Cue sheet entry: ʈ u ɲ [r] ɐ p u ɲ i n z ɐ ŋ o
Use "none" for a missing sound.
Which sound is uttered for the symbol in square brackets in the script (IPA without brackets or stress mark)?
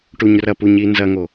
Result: r